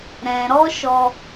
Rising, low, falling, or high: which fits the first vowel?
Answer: low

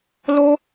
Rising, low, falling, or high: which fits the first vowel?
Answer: high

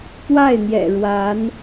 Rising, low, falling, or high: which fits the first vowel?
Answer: falling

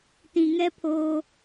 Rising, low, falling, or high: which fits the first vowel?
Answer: low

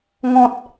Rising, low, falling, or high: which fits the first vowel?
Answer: high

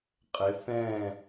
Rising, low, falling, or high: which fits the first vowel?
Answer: rising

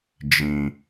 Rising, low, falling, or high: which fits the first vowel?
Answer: low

